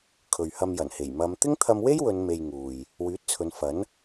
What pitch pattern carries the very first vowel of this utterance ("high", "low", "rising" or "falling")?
low